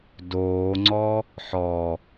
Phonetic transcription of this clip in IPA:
d oː ŋ͡ǀ ɔ | ħ ɔ

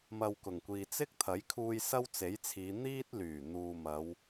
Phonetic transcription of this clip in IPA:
m ɐ˧ w k ʊ˨˩ ŋ kʷ iː˨ t͡s ɪ˥ k̚ t̪ʰ ɐ˨˥ j kʰ uː˧ j s ɐ˥ w t͡s e˨˥ j t͡sʰ iː˨˧ n̪ iː˥ t̚ l yː˨˩ n̪ uː˨ m ɐ˨˧ w

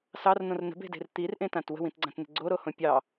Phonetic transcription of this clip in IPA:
s ɑ r n̪ õ r n ə̤ b e̤ d e̤ r t̪ i r ʔ ẽ t ã t w ə̤ w ĩ t ɡ͡ǀ ã t n̪ ə̤ ɡ͡ǀ o ɾ o h õ pʲ ɑ

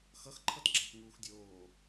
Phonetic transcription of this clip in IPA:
x ʌ x ǃʰ ʌ t ɡ͡ǁ a p ŋ uː x dʲ oː

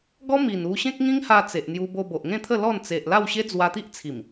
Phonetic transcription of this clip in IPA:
ɡ ɔ˦ m i˨˩ n u˧ ɕ ẽ˦ k̚ ŋ ĩ˦ ŋ h a˧ t͡s e˨ ʔ n̪ j u˧ b o˧ b o˨ ʔ ŋ ẽ˥˧ t̪ʰ ə˥˧ l ɔ˥˧ n t͡s e˨ ʔ l a˥˧ w ɕ e˦ d͡z w a˧ t̪ i˦ ʔ t͡sʰ i˨˩ m

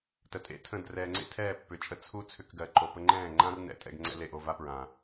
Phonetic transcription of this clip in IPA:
t ə˨ tʼ ḛ˧ tʰ ə̃˦˨ d r ɛː˨ ŋ͡ǀ ḛ˦ tʰ ɛː˦˨ pː ʏ˨ t͡ʃʼ ə˦ t͡sʰ u˦ t͡sʰ ʏ˧ k ɡ ɜ˨ ǃ o˨ p ə˧ ŋ͡ǃ ɛ̃ː˦˨ ŋ͡ǃ ã˦ r n ɛ̰˨˦ tʼ ɛ̰˧ ɡ ŋ͡ǀ ɛ̰˦ l e˨ ʔ o˧ v a˦ p ɹ ã˨

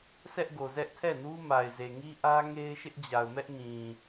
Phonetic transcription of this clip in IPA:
sʰ ɛ˦ ʔ ɡ o˨ z ɛ˦ ʔ tʰ ɛ˦˨ n u˦ m a˨ ɪ̯ z e˨ ŋ i˦ ʔ ä˦ ŋ e˦ ɪ̯ ʃ ɪ˦ ʔ d͡ʑ a˨ ʊ̯ m ɛ˦ ʔ ŋ ĩ˨

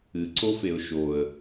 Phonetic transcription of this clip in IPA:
ɨ ǀ o f e ʊ̯ ʃ o ə̯

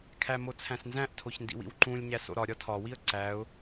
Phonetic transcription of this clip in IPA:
kʰ æ m o t͡sʰ æ̃ s n z æ̃ ʔ tʰ o ç n d ḭ w ḭ w ǃ ũ lʲ ɲ æ s o̰ ɾ ɒ ɾʲ ɒ tʰ ɒ w i ə̯ ǀ æ ʊ̯

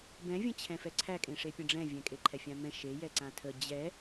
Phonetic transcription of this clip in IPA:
b ɛ̃ vʲ ə̃ t͡ɕʰ ɛ̃ f ɛ ǀʰ æ kʼ ẽ ʂ e pʲ ə̃ ɖ͡ʐ ɛ̃ vʲ ɛ̃ kʼ e ǃʰ ɛ fʲ ã m ɛ̃ ʃ e j ɛ ǀ ã tʰ ə d͡ʑ ɛ

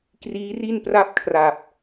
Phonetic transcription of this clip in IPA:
k r iː˦˥ r i˥˩ n p r a˥˩ p̚ kʰ r a˨˩ p̚

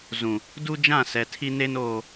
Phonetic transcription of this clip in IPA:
z ũ˨ | d u˦ d͡ʒ ã˦˨ s ɛ˨ tʰ i˦ n e˦ n oː˨

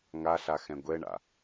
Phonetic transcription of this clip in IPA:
ŋ a ɬ a x ɛ̃ ɡʷ ɛ ɳ a̰

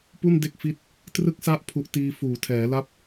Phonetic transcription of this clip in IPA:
p u˥˩ n d e˥˩ k̚ f i˦˥ t̚ | t r ɯ˦˥ k̚ s a˦˥ ʔ pʰ u˨˩ ʔ t iː˧ f uː˩˦ tʰ ɛː˩˦ l a˥˩ p̚

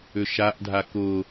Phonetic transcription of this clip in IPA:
ʏ ʃ a ʔ dʱ a k ʊ

